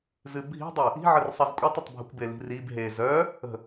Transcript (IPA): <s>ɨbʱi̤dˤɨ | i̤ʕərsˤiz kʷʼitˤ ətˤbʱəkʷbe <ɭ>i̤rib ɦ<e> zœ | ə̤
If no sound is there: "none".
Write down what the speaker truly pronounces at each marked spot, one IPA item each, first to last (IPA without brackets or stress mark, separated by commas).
z, l, e